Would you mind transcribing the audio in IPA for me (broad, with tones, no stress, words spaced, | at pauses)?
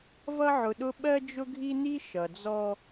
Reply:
vʌ˦ʕʊ˨ɗʊ˦ ɓɜ˦d͡ʒʊ˦ɡʱi˦ni˦ ʃʌ˨ d͡zɔ˦